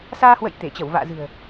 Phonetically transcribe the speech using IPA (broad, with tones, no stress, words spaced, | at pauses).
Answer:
saː˧hwə̰˧˨j t̪e˧˩t͡ɕə˧˩wva̰ː˧˨zɨ̤˨˩ə̯